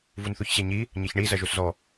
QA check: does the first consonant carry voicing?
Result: yes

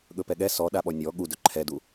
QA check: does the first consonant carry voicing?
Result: yes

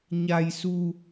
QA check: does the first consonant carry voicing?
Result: yes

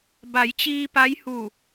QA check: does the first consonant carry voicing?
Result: yes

